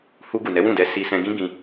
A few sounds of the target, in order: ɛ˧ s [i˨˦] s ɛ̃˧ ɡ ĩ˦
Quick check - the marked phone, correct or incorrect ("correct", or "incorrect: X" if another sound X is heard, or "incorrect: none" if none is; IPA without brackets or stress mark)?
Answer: incorrect: i˧